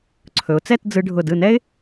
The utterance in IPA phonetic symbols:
ǀʰ ɵ˩˧ ʊ̯ t͡s ɛ˥˧ t d͡z ɯ˧ ɖʱ ʊ˧˩ d ɯ˧˩ n ɛ˥ ɪ̯

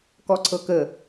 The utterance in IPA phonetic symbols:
k ɔ ǀʰ ɤ k ə

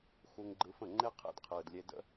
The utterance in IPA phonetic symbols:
x u˧ ŋ ɡ͡ǃ ɯ˧ f ə̃˥˩ ŋ͡ǃ e˥ qʰ ḛ˥˩ d qʰ ɯː˩ d lʲ e˧ d ə̰˥

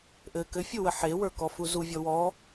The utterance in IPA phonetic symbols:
ʔ ɘ k ɘ fʲ u w ə ħ e w ə˞ k ɔ f u z u vʲ ɔ w ɔ

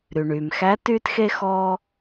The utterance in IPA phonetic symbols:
ɾ y˩ ɳ yː˩ m x æ˧˥ t yː˥ t x e˥ x ɔː˧

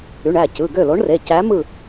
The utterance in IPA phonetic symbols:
y˩˧˩ ɳ æ˥˩ c ɯ˩˧˩ ɡ ø˥˩ l o˨˥ ɳ r e˩˧˩ c æ˨˥ m ɯ˥˩

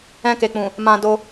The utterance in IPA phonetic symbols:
ɛ̃˧ k e˨ k͡p ũ˨ | m ã˧ d o˧

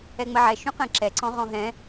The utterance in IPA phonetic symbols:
ɛ ŋ͡m ə ʕ ɛ ʃ ũ q ɛ̃ ǁ ɛ ǀ ɔ̃ ʁ ɔ̃ ɦ ɛ̃

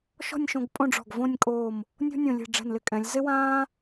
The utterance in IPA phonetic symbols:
ʃ ɔ̤˥˧ nʲ ʃ õ˧ ɡ pʼ õ˥˧ ɖ͡ʐ ɔ̤˧˩ ɡ v õ˥˧ nʲ kʼ oː˧˩ m | nʲ o̤˥ nʲ õ˧˩ lʲ ɛ̤˧˩ ɖ͡ʐ ɛ̤˧˩ n l ɪ˧ kʼ ɛ̃˩˧ lʲ z ɪ˥ w ãː˥

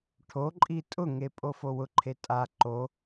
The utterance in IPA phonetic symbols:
ʈʰ o ǃʼ i tʼ ʊ ŋ e pʼ o f o w ʊ ǃʰ e tʼ a ǃ o

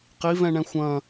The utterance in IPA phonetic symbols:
q i v ɛ̃ ɳ ɛ̃ xʷ ɐ̃

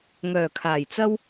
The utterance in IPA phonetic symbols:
ŋ œː˨˩ kʰ aː˨˩ j t͡s ɐ˥ w

